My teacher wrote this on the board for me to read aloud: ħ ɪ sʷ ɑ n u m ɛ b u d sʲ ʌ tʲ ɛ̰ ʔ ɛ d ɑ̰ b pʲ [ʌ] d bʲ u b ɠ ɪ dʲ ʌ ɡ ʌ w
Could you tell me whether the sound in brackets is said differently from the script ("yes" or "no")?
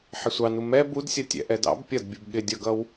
no